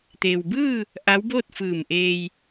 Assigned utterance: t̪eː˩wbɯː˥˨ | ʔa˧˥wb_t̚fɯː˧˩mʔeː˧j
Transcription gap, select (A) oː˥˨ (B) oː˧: A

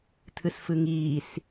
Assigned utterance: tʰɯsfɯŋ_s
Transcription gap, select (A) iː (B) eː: A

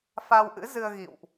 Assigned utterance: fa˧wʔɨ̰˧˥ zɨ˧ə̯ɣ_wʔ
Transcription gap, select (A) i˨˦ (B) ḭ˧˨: B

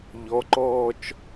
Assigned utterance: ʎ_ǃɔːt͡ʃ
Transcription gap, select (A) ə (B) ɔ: B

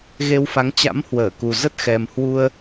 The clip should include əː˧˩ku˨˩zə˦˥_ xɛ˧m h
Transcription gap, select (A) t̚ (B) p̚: A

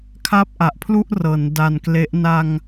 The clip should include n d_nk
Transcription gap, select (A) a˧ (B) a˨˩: A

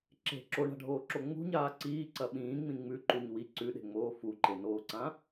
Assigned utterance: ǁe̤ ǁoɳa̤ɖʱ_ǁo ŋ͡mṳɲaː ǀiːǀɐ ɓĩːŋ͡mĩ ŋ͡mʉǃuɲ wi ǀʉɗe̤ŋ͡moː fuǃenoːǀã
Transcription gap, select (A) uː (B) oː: B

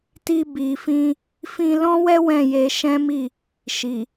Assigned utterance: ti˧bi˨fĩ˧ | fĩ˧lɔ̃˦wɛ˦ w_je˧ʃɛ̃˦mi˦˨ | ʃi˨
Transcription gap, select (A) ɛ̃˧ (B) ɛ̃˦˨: B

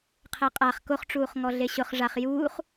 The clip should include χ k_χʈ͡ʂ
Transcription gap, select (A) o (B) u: A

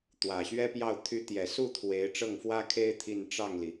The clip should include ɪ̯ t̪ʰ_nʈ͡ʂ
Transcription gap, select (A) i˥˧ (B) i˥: A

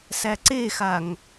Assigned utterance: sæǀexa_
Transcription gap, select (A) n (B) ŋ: B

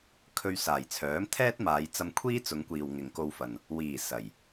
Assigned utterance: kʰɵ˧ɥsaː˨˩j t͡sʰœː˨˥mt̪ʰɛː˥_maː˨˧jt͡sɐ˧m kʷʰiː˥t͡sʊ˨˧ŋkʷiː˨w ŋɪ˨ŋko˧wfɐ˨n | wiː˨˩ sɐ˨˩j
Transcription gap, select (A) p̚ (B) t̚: B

